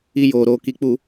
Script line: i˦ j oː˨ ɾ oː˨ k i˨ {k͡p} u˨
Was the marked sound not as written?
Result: no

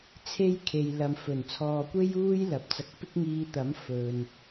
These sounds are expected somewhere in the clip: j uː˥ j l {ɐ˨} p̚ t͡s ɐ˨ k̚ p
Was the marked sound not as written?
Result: no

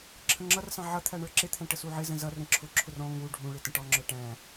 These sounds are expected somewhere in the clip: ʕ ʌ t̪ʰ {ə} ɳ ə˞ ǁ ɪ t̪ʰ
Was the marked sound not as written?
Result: yes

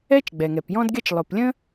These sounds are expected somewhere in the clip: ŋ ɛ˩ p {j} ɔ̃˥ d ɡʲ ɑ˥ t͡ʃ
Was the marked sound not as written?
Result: no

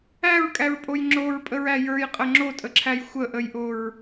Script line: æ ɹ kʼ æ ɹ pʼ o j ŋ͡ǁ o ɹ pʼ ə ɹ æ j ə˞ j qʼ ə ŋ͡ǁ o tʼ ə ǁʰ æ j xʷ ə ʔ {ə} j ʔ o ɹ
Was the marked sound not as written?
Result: no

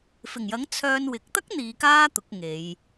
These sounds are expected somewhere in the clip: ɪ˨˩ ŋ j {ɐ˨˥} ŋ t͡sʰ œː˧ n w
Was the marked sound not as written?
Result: no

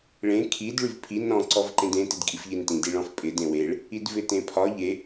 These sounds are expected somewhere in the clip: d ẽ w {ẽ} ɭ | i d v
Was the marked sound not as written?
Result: yes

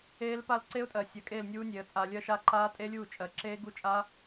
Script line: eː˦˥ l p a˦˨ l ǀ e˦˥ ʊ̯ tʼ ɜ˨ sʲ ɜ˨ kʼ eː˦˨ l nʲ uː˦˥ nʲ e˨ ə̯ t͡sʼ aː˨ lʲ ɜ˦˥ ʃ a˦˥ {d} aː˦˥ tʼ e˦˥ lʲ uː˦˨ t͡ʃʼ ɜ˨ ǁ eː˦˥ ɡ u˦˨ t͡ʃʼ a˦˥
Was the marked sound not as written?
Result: yes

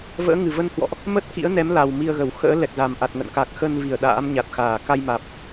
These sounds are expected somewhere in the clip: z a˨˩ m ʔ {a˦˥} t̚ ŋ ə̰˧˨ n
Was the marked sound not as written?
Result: yes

